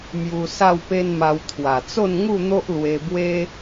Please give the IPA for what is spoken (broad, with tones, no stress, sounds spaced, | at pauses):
m j u˧ s a˥˧ w p e˦ n m a˧ w t̪ʰ w a˨˩ t͡s o˥˧ n ŋ u˥˧ n̪ o˦ ʔ l w e˧ b w e˦